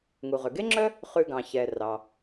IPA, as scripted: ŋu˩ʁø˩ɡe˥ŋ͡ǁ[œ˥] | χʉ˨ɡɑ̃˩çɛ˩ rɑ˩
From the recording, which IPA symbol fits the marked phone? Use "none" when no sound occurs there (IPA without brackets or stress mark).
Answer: œ˥